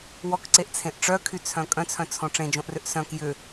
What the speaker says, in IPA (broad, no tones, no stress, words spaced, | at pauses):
wɔkǀeʔt͡sʰẽʔ ʈ͡ʂœkʰyt͡sʰœ̃ kʼœ̃t͡sʰœ̃t͡sʰõ ʈ͡ʂẽd͡ʒõʔrʏʔ sœ̃k jʏ